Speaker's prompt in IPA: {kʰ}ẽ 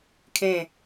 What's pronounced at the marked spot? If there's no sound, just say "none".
kʰ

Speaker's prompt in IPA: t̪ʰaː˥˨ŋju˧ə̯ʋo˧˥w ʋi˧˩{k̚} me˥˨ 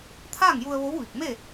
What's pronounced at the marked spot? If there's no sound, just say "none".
k̚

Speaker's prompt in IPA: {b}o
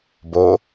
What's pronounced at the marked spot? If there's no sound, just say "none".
b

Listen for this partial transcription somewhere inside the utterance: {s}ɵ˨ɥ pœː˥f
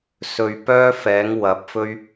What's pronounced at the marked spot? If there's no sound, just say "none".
s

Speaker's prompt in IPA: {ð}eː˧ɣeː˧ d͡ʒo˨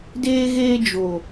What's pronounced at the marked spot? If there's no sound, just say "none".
d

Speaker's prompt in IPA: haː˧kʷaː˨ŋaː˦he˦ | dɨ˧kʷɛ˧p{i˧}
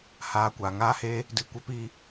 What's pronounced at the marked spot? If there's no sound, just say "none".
i˧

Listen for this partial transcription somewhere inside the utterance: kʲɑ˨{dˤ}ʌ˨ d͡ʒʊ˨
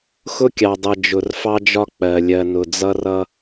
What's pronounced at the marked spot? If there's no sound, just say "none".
dˤ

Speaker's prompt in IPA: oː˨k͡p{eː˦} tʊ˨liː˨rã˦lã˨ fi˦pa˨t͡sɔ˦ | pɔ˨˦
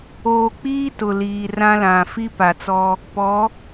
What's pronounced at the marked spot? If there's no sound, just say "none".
iː˦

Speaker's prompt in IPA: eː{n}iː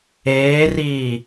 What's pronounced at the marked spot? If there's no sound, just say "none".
r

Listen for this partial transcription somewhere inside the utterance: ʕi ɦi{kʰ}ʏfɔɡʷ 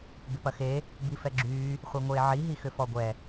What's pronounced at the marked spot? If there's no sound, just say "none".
x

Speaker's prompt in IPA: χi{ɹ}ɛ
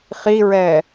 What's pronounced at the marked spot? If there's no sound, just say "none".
ɹ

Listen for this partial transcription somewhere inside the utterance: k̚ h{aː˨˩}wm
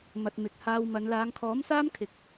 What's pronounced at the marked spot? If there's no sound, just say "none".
aː˧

